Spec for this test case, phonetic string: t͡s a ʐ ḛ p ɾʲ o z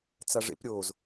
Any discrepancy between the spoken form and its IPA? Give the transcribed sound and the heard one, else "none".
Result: none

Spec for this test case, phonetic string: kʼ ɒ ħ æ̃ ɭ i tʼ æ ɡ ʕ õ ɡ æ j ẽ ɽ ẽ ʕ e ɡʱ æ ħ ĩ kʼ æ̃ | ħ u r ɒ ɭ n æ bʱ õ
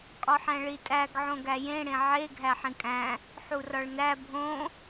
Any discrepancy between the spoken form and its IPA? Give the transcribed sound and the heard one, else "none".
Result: none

